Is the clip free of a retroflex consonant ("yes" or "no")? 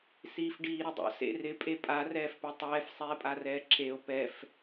no